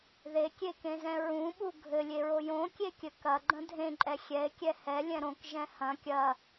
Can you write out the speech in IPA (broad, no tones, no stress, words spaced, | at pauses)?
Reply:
ðekʲekẽzɛ̃ ɹũɓu ɡʱɘlʲeɹo jõkʲekʲɘ kɐɡ͡ǃɐ̃ dʱẽǃʼɛ xʲɛe̯kʲɛ hɛlʲɛ̃ ɾõkʒɛ̃ hɐ̃ kʲɐ